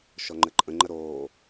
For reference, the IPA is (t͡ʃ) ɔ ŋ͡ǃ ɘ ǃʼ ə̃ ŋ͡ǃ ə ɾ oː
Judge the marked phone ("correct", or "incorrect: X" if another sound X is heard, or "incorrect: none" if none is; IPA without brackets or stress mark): incorrect: ʃ